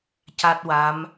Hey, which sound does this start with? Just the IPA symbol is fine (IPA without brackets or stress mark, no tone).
c